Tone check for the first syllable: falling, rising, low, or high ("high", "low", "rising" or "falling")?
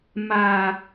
low